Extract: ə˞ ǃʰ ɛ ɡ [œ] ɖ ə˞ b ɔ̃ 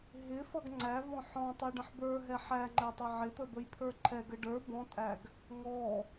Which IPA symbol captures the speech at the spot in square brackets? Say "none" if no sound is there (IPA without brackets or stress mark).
ə